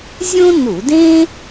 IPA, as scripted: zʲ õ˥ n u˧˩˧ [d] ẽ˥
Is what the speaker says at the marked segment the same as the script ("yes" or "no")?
yes